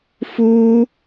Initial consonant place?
labial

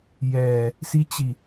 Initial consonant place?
palatal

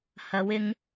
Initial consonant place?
glottal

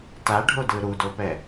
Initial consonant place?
alveolar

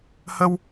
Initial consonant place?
glottal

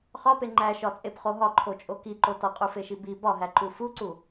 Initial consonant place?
uvular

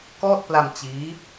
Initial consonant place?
velar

